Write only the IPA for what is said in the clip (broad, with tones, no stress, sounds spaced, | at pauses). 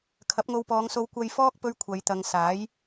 kʰ ɐ˨˥ p̚ ŋ o˧ w p ɔː˨˧ ŋ s o˧ w kʷ ɐ˧ j f ɔː˥ k̚ p ɵ˥ ɥ kʷʰ ɐ˨˧ j t̪ ɐ˨˧ ŋ s aː˨˥ j